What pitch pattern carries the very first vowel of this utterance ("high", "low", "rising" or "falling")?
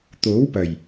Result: rising